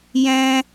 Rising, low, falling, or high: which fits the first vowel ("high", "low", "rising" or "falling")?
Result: high